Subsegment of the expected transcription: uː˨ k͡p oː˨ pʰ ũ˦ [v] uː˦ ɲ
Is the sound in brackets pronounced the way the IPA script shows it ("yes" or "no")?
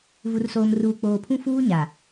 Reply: no